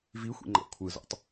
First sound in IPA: v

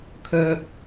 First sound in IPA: kʰ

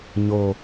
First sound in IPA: ɲ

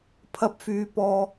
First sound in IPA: pʰ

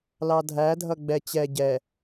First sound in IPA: l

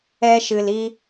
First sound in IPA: ɛ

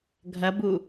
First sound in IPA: ɡʱ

